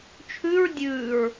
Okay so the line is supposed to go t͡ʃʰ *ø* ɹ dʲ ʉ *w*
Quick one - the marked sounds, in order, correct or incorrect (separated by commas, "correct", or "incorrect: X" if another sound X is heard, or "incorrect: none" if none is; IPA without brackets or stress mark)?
incorrect: ʉ, incorrect: ɹ